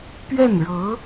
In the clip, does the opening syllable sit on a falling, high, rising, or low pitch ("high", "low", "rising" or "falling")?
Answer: falling